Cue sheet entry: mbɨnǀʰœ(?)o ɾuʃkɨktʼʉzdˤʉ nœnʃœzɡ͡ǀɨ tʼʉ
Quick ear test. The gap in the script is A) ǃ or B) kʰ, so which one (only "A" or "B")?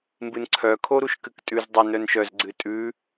B